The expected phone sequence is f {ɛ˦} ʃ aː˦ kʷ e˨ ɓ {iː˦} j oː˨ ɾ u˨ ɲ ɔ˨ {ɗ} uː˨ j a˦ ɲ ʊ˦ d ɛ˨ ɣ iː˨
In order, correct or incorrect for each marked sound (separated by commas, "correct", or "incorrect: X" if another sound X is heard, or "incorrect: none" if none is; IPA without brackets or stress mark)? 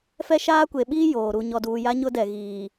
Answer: correct, correct, incorrect: d